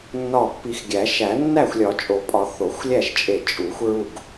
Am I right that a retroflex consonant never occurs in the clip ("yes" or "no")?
yes